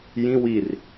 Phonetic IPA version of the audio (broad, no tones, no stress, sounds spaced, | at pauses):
j ĩ w i r